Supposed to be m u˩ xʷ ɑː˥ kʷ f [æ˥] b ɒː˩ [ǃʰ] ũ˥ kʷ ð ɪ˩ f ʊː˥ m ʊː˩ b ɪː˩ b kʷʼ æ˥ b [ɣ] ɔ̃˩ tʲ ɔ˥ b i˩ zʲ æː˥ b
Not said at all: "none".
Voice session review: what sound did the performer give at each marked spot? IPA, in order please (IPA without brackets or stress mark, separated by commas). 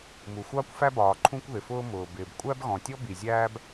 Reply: æ˥, ǃʰ, ɣ